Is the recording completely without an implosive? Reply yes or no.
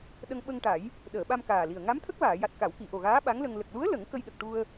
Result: no